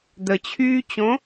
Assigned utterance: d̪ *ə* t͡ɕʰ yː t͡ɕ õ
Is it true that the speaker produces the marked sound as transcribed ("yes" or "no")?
yes